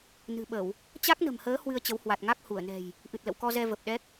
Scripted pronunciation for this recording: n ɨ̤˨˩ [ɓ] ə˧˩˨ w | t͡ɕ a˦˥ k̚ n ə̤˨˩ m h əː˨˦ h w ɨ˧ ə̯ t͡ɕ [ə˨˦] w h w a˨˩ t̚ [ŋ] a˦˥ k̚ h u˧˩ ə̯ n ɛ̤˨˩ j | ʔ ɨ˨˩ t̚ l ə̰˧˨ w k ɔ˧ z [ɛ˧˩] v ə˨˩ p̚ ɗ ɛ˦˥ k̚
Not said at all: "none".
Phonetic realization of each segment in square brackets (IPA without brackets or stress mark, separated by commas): ɓ, ə˨˦, ŋ, ɛ˧